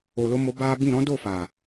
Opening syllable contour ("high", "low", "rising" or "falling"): low